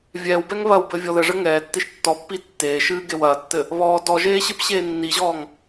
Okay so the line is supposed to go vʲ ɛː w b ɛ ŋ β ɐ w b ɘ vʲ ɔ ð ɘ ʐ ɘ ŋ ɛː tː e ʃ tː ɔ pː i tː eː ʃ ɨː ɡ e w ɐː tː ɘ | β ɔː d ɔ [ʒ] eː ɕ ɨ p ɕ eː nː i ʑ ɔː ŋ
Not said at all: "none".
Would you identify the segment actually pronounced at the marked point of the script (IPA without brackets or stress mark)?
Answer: ʒ